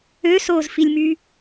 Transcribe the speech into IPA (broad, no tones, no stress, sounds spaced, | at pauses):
ø s oː z f i lʲ m y